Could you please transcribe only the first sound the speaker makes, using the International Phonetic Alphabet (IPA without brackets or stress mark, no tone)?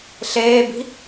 ɬ